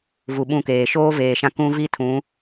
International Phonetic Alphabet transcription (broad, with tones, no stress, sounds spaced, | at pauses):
v u˨ ɓ ũ˦˨ k eː˨ ʃ oː˦ v eː˨ ʃ ã˦ k ũ˦ v i˦ tʰ ũ˨˦